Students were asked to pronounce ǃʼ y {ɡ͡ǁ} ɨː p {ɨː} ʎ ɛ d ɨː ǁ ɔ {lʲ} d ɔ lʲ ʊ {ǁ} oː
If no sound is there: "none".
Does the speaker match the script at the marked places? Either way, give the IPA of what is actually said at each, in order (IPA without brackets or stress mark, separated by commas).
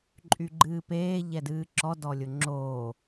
ɡ͡ǃ, eː, none, ŋ͡ǁ